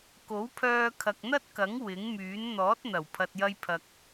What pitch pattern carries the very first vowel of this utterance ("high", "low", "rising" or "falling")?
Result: rising